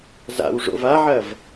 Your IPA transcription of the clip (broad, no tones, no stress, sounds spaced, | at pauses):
z a̰ w ʐ o̰ v a ʕ ɐ v